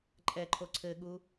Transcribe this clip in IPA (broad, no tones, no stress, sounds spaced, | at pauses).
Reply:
ǃʼ ɛ ǃʰ o ǀʰ ɘ ɠ u